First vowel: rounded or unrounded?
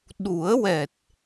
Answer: rounded